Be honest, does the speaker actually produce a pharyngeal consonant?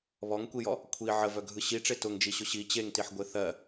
yes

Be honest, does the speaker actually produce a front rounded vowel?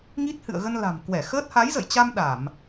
no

